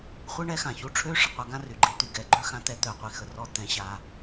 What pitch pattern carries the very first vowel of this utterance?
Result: high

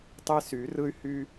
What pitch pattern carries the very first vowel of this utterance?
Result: high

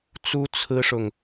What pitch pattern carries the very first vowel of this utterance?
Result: high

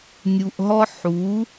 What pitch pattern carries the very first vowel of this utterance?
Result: low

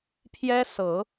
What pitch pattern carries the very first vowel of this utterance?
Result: high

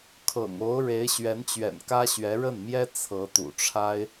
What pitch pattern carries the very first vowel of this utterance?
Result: low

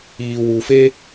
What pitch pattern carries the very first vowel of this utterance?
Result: low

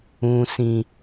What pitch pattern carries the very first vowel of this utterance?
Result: high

